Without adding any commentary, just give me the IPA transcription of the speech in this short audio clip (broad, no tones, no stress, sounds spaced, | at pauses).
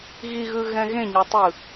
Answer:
ɣ i ɣ ɯ ɣ ɛ̃ ɣ ẽ ɲ ɤ tˤ ɯ